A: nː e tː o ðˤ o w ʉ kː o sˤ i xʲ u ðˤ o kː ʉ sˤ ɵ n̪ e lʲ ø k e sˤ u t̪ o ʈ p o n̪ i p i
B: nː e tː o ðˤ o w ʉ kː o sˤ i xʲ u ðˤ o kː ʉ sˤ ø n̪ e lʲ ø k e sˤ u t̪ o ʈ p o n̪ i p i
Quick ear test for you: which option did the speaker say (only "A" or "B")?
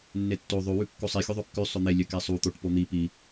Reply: A